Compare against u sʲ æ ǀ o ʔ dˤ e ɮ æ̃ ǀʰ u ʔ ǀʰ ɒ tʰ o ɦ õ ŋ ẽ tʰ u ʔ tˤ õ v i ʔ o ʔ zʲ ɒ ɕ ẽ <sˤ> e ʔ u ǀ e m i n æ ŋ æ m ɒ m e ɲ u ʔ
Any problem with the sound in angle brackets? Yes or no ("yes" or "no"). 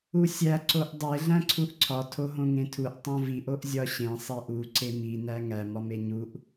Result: no